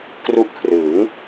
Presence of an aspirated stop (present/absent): present